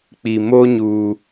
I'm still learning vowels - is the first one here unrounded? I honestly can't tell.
yes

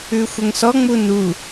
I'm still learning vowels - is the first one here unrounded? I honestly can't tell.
no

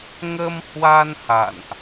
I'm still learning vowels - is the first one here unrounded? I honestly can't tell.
yes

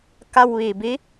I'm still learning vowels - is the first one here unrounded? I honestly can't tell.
yes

